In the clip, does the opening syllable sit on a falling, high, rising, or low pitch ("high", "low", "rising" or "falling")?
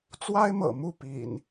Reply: high